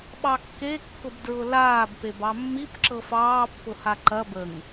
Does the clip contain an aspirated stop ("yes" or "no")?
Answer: no